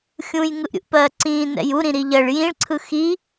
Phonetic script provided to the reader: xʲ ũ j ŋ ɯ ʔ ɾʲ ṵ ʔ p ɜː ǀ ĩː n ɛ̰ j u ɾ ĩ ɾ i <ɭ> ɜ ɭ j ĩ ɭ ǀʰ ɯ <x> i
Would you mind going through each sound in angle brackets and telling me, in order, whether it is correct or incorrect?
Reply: incorrect: ʎ, correct

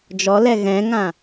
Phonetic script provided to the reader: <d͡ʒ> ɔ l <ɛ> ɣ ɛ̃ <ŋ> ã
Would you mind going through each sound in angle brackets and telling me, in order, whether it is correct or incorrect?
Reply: correct, correct, correct

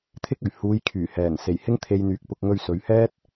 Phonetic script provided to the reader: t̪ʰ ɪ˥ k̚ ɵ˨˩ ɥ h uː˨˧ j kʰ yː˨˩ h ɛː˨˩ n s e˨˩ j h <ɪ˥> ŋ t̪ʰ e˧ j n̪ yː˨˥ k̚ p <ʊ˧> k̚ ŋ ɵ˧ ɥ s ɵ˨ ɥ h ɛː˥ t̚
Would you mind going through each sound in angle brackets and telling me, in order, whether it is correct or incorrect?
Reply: correct, correct

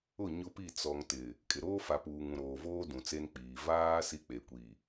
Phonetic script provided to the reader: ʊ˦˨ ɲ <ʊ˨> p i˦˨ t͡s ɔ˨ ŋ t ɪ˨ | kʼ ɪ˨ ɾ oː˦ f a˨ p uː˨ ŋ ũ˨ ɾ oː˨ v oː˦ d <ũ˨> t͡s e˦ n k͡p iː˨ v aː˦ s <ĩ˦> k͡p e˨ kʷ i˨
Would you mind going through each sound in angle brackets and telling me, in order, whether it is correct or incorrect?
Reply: incorrect: ʊ˦, correct, incorrect: i˦

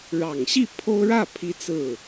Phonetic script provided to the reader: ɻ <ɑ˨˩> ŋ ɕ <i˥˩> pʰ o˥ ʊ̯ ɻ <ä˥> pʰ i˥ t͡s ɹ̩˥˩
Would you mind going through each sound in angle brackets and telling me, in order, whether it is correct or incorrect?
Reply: correct, correct, incorrect: ä˥˩

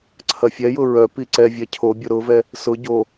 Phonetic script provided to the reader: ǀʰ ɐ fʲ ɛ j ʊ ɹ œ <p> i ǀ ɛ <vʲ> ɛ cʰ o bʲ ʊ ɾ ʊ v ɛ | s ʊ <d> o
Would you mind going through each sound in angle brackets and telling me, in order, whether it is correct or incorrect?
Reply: correct, correct, incorrect: ɟ

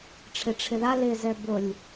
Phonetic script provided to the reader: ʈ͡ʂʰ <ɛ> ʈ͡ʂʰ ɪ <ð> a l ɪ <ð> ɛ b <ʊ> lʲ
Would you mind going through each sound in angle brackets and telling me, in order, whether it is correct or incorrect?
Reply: incorrect: ɪ, correct, incorrect: z, correct

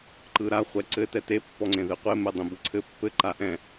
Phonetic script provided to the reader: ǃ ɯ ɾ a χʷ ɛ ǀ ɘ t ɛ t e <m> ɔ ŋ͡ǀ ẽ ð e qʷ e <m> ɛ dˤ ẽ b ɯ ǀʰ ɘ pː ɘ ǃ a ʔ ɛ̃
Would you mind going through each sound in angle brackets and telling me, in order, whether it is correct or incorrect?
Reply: incorrect: pː, correct

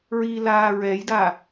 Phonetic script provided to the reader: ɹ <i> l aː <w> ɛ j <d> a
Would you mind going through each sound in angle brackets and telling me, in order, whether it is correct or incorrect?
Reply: correct, incorrect: ɹ, correct

